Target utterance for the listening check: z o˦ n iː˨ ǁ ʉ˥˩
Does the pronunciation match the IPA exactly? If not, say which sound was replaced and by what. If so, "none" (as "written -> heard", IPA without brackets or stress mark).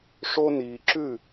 z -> ʂ